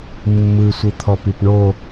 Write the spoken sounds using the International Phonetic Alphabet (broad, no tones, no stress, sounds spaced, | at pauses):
mː ɯ sʷ ɯ t̪ʰ ɔ p i p ɳ o